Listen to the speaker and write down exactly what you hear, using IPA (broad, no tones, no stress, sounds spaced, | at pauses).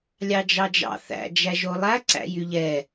lʲ ɑ d͡ʒ ɑ d͡ʒ ɑ̰ θ æ̰ d͡ʒ æ ʒ o lˠ æ ǀ æ̰ j y ʎ ɛ